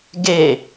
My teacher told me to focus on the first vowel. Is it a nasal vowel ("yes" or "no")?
no